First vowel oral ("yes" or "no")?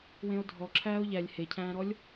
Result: no